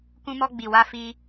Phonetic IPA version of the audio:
k ũ˧ m ɔ˧ ɡ͡b i˨ w a˧ f i˧

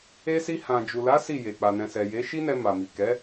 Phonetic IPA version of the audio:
e˧ s i˧ h ã˨ d͡ʒ u˨ l a˨˦ s i˦˨ j e˨ k͡p a˨ n ɛ̃˨ s ɛ˨ j e˨˦ ʃ i˦ n ɛ˧ m a˨ m i˨ k ɛ˨˦

